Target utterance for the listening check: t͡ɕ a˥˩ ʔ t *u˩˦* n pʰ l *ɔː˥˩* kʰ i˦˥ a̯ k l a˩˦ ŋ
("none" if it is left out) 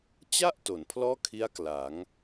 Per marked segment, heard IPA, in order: o˩˦, ɔː˥˩

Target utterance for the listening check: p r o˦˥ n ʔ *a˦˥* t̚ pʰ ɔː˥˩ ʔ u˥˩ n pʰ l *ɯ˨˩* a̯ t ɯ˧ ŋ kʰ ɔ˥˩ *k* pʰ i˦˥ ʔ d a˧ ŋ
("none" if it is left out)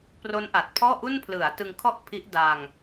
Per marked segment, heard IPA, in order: a˨˩, ɯ˩˦, ʔ

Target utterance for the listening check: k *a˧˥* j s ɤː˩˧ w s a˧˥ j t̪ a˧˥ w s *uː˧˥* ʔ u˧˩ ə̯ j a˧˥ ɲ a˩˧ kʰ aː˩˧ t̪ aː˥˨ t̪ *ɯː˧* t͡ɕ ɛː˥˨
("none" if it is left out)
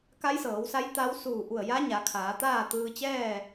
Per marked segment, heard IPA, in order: a˧˥, uː˧˩, ɯː˧

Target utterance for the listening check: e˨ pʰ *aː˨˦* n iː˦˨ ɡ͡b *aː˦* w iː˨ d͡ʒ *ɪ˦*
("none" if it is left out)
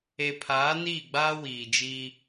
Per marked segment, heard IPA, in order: aː˨˦, aː˦, i˦

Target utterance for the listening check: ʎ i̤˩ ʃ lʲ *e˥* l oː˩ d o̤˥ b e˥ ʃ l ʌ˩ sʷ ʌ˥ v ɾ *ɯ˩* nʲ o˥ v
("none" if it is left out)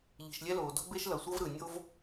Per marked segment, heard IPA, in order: ɛ˥, ɯ˩

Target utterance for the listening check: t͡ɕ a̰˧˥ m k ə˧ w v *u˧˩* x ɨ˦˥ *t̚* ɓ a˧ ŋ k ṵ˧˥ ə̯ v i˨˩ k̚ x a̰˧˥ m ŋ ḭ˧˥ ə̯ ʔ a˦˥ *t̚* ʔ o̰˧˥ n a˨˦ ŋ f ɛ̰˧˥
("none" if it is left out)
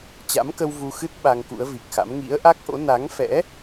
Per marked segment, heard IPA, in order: u˧, t̚, k̚

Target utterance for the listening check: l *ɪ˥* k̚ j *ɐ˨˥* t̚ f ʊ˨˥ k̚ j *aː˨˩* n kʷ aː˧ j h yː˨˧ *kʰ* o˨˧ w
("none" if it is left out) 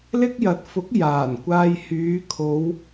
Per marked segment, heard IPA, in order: ɪ˥, ɐ˨˥, aː˨˩, kʰ

